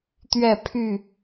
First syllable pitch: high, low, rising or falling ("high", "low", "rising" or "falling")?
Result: falling